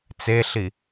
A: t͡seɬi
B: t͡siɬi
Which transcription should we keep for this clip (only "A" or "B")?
A